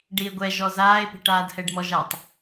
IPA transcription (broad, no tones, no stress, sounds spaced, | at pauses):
ɖ i e̯ ɡʷ ɛ ʒ ɔ z aː e̯ p i̤ ʈ aː d h ɛ ɖ m ɔ ʒ a tˤ